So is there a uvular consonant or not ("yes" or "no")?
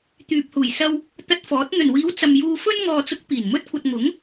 no